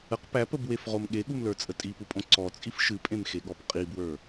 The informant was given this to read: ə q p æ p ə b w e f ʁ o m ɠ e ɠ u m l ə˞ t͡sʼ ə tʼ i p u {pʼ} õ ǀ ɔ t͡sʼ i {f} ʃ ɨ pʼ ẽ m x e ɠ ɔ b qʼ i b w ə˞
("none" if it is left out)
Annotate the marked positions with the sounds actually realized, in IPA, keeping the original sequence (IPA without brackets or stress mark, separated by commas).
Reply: pʼ, f